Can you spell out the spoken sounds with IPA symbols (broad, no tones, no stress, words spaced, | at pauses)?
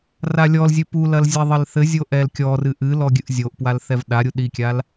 ralʲɔlzʲɨ pulɐl zʲɛðˤɘlθɘzʲo ʔɛlkʲɔrɨ ʔɨlɔ ɡʲɨʔzʲoʔpwal θɛvɗaɾʲu ɗikʲal